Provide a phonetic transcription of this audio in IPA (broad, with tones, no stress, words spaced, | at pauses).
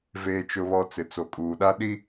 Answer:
veː˨t͡ʃʊ˨βɔ˨ t͡sɪ˨t͡so˨kʼuː˨ɗa˦ ɗi˦